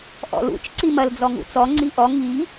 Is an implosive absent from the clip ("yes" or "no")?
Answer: yes